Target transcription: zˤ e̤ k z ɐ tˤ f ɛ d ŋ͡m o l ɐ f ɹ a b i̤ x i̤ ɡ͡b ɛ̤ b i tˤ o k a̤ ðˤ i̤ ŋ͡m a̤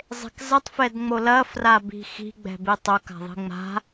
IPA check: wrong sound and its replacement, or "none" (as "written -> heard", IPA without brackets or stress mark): ɹ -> r